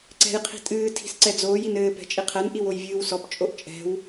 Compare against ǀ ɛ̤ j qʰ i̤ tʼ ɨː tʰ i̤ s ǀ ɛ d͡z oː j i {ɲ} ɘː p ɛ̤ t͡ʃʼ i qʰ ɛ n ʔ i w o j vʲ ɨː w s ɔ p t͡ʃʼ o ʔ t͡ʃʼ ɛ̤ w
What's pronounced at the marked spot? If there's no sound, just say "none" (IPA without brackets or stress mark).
n